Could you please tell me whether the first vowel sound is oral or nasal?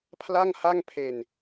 oral